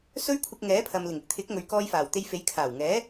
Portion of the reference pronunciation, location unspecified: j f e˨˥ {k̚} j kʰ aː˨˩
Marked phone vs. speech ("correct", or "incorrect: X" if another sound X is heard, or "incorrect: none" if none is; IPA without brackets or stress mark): incorrect: none